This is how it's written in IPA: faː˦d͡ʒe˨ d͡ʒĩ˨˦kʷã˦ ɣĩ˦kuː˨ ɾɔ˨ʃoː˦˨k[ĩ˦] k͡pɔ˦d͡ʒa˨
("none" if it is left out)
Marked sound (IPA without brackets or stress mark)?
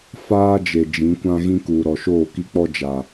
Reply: i˦